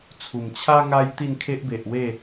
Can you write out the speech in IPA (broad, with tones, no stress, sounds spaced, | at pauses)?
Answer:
t͡sʰ u˨˩ m t͡ɕʰ a˦ ŋ a˦ j t̪ i˥˧ n kʰ e˦ ʔ b e˨ ʔ w e˥˧